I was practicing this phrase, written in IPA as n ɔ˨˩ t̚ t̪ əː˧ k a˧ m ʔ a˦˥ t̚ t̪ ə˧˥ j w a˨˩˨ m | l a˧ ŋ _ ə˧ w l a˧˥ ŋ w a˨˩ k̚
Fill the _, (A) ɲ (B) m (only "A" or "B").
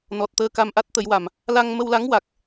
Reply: B